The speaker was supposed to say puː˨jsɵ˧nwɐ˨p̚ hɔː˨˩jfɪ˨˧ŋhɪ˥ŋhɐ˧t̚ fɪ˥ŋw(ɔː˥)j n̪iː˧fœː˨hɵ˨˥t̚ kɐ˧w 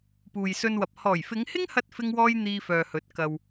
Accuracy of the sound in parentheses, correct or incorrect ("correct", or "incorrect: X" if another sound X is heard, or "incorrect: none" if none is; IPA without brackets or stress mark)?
correct